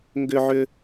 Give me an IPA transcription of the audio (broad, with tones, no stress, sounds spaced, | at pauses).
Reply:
ŋ ɡ ʏ˦ ʕ ʏ˦